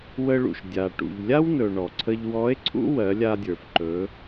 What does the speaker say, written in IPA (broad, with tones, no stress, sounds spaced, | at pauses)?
w ə˧ ɭ ṵ˩ ʃ dʲ a˩ ʈ ṵ˩ ʎ lʲ a˥ w n ɵ˩ ɳ ɔ˩ ǀʰ ə˧ ʎ w ɔ˧˥ e̯ ǀʰ ṵ˥ w ɜ˩˧ lʲ a˧ dʲ ə˞˩ f ǃ ɵ˩˧